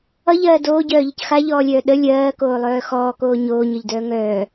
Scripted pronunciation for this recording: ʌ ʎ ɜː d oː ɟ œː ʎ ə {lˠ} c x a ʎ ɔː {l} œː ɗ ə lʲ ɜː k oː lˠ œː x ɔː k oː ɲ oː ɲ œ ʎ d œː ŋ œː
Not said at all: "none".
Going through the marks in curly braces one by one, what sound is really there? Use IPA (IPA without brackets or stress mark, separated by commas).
none, lʲ